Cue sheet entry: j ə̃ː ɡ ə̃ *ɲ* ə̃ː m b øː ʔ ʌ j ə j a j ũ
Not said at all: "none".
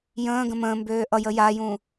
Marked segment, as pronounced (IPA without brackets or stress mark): m